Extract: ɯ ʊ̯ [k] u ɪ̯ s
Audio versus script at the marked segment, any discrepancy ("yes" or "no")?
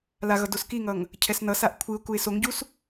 no